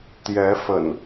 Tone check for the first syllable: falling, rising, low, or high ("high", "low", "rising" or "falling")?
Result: rising